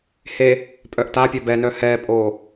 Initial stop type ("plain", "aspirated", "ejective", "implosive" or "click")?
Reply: ejective